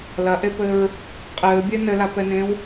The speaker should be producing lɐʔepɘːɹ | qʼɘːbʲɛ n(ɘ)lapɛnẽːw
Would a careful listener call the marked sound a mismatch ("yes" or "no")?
no